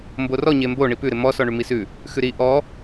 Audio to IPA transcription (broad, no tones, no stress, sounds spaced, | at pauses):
m b o r ɔ ɲ e m b o ɳ i p ʉ ɾ ɪ m ɔ s ɔ ɳ ʉ m i s ʉ | x ʉ ɾ i ʔ ɔ